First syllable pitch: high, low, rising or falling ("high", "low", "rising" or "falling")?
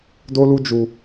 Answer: high